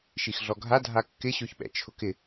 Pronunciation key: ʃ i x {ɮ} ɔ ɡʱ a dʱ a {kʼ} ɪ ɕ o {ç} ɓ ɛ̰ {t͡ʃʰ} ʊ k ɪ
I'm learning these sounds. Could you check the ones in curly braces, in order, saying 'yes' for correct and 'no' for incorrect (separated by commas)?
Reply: yes, no, yes, yes